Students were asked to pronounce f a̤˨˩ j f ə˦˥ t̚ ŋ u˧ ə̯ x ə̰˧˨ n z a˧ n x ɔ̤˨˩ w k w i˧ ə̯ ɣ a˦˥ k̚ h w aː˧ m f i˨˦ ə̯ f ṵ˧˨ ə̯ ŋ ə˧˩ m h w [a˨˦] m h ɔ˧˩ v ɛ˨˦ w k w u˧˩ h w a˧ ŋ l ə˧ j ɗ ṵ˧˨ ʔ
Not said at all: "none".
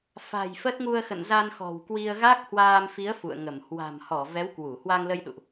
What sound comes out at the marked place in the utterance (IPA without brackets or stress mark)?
a̤˨˩